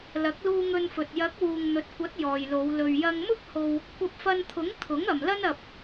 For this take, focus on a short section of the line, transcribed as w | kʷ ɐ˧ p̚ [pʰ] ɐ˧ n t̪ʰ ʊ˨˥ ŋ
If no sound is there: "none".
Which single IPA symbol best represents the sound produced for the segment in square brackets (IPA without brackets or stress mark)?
f